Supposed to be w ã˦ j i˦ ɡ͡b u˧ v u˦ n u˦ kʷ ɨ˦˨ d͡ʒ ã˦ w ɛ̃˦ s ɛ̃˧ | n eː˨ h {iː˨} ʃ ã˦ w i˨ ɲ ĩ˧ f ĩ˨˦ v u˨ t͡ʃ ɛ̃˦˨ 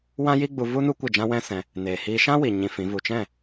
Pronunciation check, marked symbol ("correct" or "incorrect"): incorrect